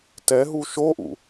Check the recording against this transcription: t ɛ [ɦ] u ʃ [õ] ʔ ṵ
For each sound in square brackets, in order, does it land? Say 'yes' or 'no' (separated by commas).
yes, no